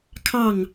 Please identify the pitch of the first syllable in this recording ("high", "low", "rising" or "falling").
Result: falling